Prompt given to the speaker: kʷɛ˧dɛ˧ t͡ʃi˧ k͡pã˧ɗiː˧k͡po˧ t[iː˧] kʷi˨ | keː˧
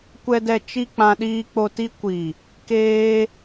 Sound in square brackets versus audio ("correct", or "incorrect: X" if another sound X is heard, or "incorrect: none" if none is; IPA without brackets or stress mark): incorrect: i˧